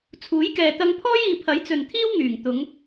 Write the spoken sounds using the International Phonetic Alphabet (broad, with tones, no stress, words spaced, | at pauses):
t͡sʰuː˨˥jkɛː˨t̪ɐ˧ŋpʰɔː˥j iː˨pʰɐ˨˥jt͡sɵ˨n t̪ʰiː˥wŋyː˨˩ŋt̪ʊ˨˧ŋ